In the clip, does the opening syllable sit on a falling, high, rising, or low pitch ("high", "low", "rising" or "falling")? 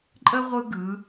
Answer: high